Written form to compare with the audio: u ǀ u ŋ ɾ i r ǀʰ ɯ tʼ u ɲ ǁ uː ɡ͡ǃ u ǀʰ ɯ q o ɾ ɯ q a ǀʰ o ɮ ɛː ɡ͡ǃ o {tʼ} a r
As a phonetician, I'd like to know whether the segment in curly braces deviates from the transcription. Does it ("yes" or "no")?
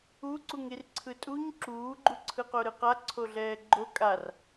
yes